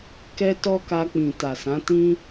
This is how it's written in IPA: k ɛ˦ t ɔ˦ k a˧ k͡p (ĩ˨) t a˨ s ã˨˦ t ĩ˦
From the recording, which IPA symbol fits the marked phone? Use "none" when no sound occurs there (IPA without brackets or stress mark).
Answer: ĩ˨